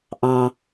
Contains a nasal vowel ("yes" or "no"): yes